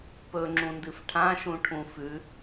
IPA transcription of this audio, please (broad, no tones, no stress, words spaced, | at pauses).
pɵŋ͡ǁũndɨf ʈʰãʃũʈʰũ fʉ